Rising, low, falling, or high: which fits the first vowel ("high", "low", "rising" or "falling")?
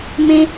high